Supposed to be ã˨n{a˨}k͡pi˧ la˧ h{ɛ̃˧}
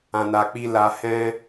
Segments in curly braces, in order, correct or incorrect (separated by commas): correct, correct